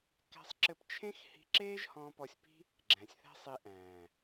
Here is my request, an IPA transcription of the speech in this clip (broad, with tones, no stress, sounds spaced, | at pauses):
k æ̤˦ sˤ ǁ ɘ˦ p t͡ʃʰ ẽ˦ x h i̤˧ ǁ eː˦ ʒ h ɔ̃ː˧ p ɔ˧ sʲ p i̤˦ | ɡ͡ǁ æ̃˨ sʲ θ æ̤˦ sˤ i˧ ʔ æ̃ː˨